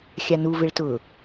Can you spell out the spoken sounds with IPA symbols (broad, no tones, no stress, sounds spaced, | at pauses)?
xʲ a n u v ɪ ɭ t ʊ